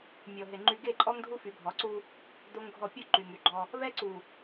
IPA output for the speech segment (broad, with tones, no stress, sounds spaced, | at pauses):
mʲ ɔ˨ ɦ e˨ ŋ͡ǃ y˦ ɡ e˦˨ ǃʼ ɔ˦ ŋ dʱ u˦ f y˨˦ bʱ ɔ˨˦ ǀ u˦ | d o˦ ŋ ɡʱ ɔ˦˨ pʲ o˦ ǃ y˨ ŋ y˨ ɡ͡ǃ ɔ˦ | β ɛ˦ ǀ u˨